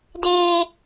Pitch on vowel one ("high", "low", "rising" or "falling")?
high